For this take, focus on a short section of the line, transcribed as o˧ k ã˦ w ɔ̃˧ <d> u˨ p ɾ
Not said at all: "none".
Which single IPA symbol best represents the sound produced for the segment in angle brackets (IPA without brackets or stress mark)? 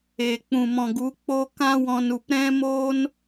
n